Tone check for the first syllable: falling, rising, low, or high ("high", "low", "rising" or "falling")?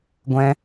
high